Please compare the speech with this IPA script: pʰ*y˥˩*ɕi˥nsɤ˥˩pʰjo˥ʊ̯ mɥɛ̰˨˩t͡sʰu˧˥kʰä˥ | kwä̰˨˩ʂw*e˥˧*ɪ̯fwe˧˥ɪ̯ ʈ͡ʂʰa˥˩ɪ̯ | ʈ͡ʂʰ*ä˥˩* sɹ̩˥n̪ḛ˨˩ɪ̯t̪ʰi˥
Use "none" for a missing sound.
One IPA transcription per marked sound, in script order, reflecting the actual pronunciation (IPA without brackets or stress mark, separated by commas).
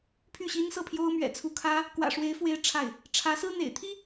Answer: y˥˩, e˧˥, ä˧˥